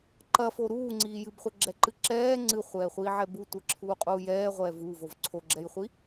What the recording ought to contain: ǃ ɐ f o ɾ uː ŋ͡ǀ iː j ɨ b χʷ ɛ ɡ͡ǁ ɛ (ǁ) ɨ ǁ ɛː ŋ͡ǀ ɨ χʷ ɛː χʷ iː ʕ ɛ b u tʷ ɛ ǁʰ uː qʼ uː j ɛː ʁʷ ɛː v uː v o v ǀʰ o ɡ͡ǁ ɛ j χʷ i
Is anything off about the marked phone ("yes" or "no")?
yes